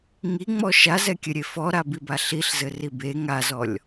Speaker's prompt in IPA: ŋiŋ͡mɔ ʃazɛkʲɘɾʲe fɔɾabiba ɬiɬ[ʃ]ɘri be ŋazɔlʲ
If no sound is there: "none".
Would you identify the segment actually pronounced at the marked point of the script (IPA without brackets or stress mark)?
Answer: z